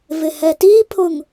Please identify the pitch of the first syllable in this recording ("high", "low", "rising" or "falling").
low